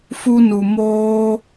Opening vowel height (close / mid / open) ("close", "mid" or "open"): close